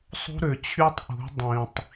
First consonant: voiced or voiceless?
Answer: voiceless